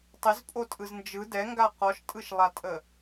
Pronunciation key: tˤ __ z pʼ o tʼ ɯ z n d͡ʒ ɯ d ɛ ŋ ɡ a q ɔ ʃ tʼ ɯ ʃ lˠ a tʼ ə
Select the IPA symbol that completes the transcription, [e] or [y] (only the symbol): e